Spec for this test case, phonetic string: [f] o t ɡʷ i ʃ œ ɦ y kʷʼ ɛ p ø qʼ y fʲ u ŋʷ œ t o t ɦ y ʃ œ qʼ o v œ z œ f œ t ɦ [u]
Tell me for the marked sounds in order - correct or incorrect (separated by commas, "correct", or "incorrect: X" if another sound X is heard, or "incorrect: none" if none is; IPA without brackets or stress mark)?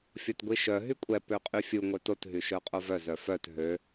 incorrect: fʲ, incorrect: ø